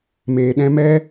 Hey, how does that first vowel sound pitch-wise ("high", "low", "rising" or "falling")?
low